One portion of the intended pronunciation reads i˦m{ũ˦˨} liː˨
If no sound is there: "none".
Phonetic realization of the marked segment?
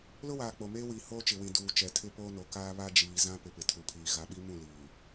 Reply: ũ˦˨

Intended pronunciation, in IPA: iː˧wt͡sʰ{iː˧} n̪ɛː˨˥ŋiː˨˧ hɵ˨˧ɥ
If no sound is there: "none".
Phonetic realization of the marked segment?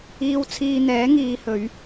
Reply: iː˧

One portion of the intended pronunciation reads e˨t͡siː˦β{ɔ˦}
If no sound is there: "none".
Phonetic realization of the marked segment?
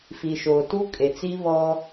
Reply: ɔ˦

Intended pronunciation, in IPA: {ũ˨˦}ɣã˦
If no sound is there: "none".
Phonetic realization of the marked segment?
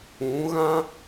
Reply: ũ˨˦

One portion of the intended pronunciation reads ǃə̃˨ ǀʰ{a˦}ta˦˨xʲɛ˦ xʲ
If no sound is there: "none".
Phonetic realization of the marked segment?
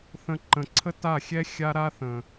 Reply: ə˦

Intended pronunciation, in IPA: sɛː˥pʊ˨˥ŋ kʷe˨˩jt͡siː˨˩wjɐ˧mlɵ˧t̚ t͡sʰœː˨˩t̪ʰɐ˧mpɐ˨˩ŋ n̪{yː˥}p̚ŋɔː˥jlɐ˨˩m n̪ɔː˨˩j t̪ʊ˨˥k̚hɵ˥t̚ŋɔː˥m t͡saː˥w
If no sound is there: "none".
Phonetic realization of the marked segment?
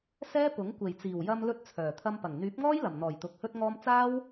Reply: yː˨˥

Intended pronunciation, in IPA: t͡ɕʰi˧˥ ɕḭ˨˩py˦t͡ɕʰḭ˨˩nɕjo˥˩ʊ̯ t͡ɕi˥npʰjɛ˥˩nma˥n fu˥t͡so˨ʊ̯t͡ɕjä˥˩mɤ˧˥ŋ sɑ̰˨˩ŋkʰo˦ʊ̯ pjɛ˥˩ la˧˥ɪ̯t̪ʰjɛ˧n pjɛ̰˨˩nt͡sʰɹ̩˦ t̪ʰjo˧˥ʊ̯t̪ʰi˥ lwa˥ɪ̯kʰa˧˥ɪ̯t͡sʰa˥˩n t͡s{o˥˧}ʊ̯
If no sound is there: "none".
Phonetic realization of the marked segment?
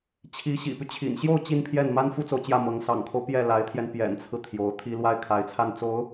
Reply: o˧˥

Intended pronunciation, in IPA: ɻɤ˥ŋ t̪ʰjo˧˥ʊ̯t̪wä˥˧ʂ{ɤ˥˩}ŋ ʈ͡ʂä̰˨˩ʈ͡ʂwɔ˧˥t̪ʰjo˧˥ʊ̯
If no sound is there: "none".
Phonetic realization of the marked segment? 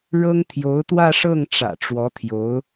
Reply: ɤ˥˩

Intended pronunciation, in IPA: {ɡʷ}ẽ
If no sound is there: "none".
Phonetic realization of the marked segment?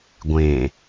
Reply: ɡʷ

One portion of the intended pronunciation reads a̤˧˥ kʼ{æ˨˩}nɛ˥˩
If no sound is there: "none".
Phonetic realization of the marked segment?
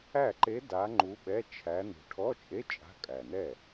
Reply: æ˨˩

